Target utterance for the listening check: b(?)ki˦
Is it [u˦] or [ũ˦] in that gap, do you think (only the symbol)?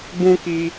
ũ˦